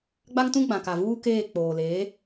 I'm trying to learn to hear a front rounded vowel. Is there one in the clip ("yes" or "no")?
no